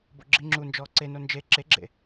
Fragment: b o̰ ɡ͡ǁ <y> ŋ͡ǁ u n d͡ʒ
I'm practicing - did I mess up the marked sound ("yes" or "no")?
yes